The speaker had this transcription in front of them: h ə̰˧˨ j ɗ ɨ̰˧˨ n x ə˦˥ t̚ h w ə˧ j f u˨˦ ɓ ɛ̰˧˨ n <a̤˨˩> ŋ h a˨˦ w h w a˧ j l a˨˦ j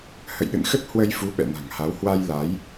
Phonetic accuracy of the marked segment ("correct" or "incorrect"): correct